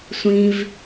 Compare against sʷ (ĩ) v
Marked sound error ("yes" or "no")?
no